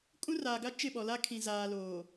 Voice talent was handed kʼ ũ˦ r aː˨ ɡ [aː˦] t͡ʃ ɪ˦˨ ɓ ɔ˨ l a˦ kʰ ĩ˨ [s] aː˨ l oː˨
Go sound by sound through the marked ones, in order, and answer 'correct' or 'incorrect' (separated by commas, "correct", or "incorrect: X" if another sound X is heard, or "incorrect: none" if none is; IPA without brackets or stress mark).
incorrect: a˦, incorrect: z